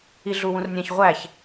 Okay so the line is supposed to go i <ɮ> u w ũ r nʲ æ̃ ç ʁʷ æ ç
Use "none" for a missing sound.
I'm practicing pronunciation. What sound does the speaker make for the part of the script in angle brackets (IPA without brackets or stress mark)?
ɮ